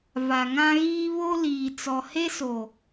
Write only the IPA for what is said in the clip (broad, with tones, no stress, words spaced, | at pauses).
va˨ŋã˦ɣiː˦ βo˦liː˨ t͡sɔ˨he˦so˨